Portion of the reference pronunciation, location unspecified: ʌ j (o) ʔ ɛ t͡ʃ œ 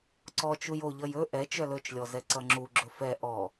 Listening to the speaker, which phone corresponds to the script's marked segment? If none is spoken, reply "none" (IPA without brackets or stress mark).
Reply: ɵ